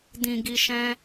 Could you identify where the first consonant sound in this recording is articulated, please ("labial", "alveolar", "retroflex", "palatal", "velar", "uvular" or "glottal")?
alveolar